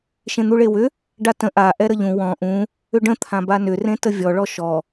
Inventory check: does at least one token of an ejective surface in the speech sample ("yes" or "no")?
no